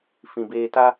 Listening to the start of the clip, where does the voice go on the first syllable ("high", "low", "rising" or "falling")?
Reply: low